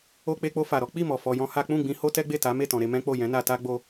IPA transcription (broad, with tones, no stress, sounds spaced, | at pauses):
o˧ k͡p e˧ k͡p o˧ f a˨ ɾ ɔ˨˦ k͡p i˦˨ m ɔ˨ f ɔ˧ j ɔ̃˦ h a˦ k͡p ũ˦˨ ɡ͡b ĩ˧ h o˦ t ɛ˦ ɡ͡b e˦˨ t a˨˦ m e˦˨ t ɔ̃˨ ɾ e˧ m ɛ̃˦ k͡p o˦˨ j ɛ̃˨˦ n a˧ t a˦ ɡ͡b o˧